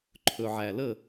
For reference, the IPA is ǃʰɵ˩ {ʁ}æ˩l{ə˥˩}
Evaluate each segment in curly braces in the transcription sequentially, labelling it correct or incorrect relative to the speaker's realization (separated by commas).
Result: incorrect, correct